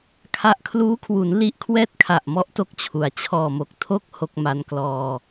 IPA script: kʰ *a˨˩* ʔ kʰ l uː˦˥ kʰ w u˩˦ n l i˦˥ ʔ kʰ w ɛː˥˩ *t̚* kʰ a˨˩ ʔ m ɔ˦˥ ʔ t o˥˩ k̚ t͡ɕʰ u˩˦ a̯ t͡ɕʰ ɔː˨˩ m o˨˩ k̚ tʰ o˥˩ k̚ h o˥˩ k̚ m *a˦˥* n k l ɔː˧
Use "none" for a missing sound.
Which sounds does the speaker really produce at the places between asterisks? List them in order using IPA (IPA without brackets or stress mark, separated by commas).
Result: a˥˩, t̚, a˦˥